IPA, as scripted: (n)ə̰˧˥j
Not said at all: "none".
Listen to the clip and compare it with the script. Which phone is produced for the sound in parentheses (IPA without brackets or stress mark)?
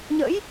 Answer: ɲ